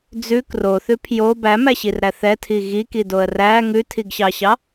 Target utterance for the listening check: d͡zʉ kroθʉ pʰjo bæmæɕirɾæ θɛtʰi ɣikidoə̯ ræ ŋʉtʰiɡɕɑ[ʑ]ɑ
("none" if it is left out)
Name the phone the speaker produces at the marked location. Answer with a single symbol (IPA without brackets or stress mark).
ɕ